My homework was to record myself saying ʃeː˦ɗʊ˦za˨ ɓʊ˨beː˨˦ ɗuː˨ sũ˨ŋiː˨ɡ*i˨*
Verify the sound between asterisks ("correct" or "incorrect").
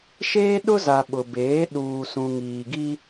incorrect